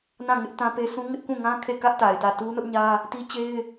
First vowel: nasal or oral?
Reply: nasal